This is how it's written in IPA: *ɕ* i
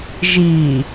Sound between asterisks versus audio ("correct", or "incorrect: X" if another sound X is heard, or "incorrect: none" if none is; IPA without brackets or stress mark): incorrect: ʒ